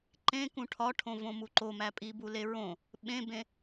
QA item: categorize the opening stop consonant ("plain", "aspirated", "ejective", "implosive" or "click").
click